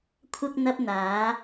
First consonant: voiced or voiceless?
voiceless